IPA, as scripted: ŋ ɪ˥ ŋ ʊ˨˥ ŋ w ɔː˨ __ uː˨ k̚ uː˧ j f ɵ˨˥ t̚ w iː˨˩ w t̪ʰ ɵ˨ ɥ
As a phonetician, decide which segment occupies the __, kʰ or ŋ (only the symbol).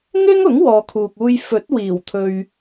kʰ